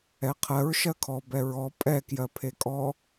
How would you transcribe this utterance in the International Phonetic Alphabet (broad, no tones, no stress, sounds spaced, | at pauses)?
ɛ qʰ ɜ ɹ ʃ ɜ kʰ ɔ b ɛ ɹ ɔ pʼ ɛ k j ɜ pʰ e kʼ ɔ